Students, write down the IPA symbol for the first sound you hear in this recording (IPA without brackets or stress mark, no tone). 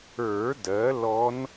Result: ə˞